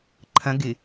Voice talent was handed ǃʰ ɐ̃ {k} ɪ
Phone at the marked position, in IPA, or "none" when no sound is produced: ɡ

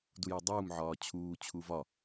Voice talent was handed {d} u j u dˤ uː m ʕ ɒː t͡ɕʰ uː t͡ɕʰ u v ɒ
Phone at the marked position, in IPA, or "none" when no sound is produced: d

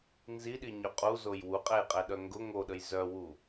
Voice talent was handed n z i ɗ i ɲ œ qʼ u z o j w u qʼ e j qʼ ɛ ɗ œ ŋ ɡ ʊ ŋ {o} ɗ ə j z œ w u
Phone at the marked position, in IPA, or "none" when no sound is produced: o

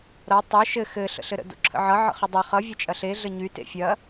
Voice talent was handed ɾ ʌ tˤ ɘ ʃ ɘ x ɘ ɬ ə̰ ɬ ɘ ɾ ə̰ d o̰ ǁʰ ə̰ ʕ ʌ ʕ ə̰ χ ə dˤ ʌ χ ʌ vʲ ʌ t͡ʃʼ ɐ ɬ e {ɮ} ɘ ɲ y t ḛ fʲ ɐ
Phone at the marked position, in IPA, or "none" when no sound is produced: ɮ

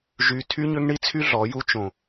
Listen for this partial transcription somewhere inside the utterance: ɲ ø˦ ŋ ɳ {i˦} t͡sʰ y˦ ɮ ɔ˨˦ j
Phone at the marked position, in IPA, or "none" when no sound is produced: i˦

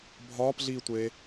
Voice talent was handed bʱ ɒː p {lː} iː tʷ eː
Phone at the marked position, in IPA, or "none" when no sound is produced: ɮ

